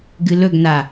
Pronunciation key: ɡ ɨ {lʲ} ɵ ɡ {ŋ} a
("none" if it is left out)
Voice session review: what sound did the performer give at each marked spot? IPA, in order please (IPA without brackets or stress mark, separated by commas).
l, n